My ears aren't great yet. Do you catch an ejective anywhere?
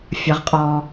yes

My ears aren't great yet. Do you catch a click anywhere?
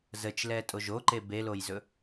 yes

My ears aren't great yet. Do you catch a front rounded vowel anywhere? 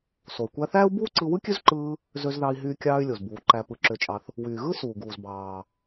yes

